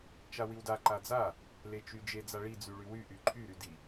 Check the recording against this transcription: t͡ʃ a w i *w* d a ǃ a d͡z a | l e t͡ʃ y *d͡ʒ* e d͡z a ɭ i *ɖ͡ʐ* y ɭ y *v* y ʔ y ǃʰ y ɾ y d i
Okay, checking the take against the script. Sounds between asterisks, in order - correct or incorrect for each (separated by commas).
correct, correct, incorrect, incorrect